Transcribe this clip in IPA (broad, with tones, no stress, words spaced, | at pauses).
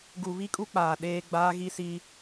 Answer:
ɡu˨βi˦kʼu˦ k͡paː˨ ɗeː˦ ɡ͡baː˦ɣi˦si˦